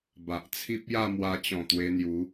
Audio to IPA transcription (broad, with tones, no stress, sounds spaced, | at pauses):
b a˨ ʔ t͡sʰ i˦ p̚ j a˥˧ m w a˧ t͡ɕ ɔ̃˨˩ t̪ w e˧ n̪ j u˨˦